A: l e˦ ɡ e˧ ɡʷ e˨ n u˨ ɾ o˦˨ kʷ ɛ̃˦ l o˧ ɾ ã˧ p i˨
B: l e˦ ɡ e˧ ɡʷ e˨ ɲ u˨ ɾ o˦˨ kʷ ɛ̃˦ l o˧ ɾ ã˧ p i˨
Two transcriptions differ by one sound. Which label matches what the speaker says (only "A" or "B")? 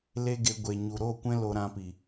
B